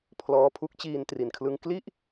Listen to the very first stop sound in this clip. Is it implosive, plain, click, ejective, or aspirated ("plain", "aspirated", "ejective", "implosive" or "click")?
aspirated